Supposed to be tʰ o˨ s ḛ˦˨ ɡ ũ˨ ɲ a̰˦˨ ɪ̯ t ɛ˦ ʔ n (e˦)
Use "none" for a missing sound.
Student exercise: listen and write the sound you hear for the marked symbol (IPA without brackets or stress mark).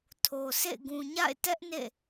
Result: ḛ˦˨